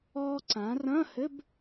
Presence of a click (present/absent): present